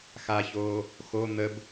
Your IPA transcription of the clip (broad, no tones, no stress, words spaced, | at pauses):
xaçoː | xo n̪əb